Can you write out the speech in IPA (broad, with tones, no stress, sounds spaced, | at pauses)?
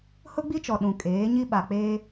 h ʊ˦ ɡ͡b i˦ t͡ʃ ɔ˨ ɗ ũ˨ kʼ eː˨˦ ɲ i˦ ɓ a˨ k͡p eː˦